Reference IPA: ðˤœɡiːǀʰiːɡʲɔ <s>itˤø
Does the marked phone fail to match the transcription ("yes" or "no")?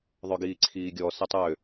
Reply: no